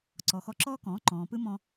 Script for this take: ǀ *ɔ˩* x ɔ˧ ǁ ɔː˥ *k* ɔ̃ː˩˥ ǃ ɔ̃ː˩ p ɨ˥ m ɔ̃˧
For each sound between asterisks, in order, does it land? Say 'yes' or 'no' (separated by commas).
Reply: yes, yes